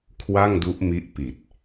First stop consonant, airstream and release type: aspirated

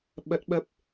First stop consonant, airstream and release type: implosive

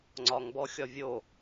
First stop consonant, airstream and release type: click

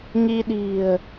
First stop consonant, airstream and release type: implosive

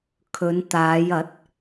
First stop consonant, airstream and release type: aspirated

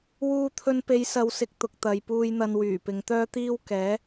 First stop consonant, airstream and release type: aspirated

